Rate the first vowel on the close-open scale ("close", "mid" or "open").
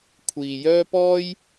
close